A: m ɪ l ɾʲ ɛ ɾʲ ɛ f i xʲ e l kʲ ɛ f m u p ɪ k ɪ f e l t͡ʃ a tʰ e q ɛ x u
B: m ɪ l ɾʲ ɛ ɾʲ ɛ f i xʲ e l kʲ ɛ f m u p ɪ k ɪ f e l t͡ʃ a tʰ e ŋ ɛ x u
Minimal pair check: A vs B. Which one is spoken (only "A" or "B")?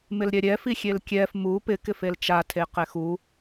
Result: A